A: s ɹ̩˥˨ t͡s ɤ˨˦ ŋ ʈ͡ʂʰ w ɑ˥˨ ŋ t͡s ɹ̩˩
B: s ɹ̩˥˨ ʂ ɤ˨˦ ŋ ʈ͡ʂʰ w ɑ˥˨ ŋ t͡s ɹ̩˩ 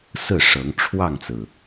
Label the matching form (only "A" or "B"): B